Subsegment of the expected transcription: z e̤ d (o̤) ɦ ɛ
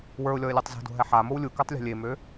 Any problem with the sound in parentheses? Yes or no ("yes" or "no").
no